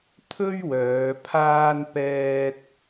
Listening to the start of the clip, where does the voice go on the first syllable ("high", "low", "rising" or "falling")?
high